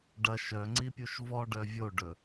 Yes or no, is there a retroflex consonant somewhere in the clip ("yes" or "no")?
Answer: yes